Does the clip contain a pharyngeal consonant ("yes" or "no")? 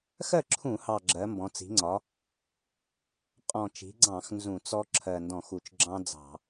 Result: no